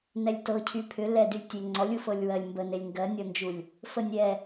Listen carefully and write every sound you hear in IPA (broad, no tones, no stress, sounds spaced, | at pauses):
n ɛ lʲ t ɤ cʰ y pʰ ʏ l ɛ d y lʲ tʲ e ŋ͡ǀ ɔ lʲ u f ɤ lʲ w ɜ lʲ m b ə n e lʲ ŋ ɡ ɜ nʲ ɔ n d͡ʒ u lʲ | f ə nʲ ɛ